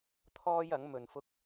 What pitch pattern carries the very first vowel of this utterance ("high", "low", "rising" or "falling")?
high